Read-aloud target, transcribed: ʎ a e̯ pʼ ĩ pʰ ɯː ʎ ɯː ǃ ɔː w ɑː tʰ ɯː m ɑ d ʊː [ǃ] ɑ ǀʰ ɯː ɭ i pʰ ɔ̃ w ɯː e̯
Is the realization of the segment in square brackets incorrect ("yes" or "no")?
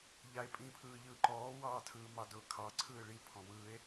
yes